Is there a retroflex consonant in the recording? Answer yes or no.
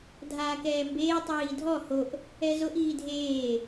no